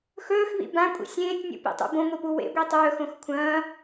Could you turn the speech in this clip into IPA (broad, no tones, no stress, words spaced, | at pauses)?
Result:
xɵːxβḭ bãkʷʼḭ sʲẽːtʲnʲṵpḭtˤṵ bõŋʷipu wḛɡʷi tˤɵːxõx kʷʰɐ̃ː